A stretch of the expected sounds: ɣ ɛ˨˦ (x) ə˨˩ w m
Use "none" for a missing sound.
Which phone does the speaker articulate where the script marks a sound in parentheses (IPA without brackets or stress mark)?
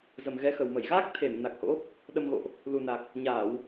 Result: x